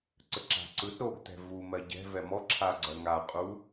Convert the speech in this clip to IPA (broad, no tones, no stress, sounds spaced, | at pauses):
ǀ ə ǁ a̤ ǀ ɯ t ɾ o ɡ t ɛ̤ v u m ɜ ɟ ɛ̤ v ɛ m ɔ ǁʰ a ɡ͡ǀ ɜ ŋ a qʼ u